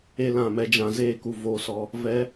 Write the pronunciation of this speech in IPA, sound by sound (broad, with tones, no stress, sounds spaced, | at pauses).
e˦ l ã˦˨ m ɛ˧ d͡ʒ ã˨ z eː˦˨ k u˨ v oː˨ s ɔ˨ | v ɛ˧